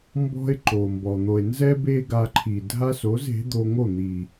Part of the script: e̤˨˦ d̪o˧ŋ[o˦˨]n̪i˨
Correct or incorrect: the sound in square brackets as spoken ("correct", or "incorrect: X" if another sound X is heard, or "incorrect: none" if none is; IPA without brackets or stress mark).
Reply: correct